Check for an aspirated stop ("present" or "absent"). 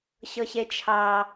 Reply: present